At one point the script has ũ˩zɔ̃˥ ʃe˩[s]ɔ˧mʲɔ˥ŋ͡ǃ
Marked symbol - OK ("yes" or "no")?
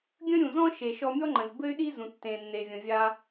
no